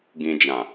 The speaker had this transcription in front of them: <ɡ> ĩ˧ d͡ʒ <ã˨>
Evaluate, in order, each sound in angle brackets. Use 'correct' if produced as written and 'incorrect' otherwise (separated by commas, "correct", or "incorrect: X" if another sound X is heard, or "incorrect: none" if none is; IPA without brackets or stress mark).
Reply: correct, correct